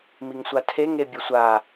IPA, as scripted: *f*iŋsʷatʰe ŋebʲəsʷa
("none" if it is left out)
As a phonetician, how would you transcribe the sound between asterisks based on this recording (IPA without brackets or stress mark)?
m